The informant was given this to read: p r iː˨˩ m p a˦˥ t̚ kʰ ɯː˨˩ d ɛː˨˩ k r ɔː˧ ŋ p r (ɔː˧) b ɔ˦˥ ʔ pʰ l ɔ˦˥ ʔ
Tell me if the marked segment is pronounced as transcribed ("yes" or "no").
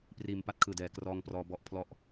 yes